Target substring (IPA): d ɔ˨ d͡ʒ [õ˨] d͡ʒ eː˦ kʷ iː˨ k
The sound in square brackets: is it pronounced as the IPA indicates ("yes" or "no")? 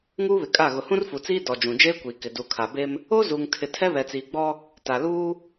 no